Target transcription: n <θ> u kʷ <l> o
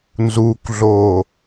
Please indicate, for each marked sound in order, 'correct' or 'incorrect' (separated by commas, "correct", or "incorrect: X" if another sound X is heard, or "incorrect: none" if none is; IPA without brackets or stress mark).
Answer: incorrect: z, incorrect: ɮ